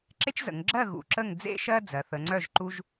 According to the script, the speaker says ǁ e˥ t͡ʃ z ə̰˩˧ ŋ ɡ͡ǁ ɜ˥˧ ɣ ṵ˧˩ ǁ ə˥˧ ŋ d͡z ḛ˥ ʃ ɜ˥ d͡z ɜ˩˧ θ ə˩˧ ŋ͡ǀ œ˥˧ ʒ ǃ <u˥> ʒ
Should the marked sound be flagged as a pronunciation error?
no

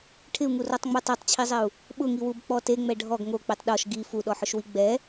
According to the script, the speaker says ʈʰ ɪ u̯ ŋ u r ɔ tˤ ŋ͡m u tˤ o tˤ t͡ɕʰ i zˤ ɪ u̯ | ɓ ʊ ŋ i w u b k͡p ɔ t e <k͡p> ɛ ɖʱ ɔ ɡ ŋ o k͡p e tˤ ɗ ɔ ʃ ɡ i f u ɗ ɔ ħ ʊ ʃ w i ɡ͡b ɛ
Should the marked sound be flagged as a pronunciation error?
yes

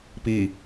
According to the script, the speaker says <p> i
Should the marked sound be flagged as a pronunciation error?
no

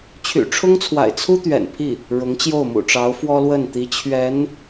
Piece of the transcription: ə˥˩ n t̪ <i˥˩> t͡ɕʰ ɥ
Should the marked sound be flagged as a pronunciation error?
yes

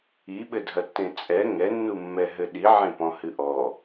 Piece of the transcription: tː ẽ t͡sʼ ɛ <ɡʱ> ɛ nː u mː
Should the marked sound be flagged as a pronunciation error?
yes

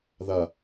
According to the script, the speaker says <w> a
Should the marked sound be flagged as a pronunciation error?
yes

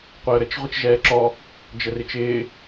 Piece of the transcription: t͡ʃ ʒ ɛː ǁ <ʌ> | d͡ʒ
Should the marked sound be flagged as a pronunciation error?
yes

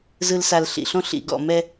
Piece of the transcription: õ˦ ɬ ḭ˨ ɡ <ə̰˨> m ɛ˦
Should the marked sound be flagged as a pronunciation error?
yes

